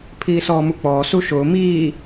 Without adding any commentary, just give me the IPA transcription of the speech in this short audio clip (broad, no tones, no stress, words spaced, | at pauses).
pʰiːsɔːmuk͡pɔː suʃʊː miː